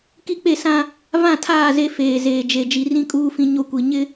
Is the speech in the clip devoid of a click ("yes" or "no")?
yes